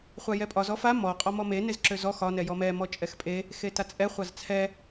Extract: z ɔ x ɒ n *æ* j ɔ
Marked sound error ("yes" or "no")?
yes